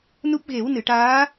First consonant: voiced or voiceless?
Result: voiced